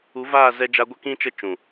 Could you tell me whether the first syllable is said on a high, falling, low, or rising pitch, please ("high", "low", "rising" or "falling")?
rising